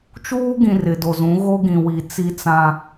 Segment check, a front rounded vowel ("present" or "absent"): absent